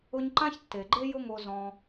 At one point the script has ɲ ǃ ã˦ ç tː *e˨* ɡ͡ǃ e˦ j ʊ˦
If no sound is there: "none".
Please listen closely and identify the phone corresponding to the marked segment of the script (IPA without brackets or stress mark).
e˨